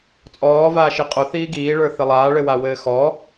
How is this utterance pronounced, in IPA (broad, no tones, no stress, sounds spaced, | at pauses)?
t͡sʼ ɔː v aː ʃ i qʼ o θ iː ɡ iː ɭ ə˞ θ ɘ lˠ aː ɭ ɘ w a w ɘː x ɔ